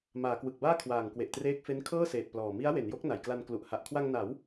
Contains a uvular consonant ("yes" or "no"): no